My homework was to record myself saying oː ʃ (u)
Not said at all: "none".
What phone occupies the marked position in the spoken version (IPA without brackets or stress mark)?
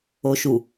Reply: u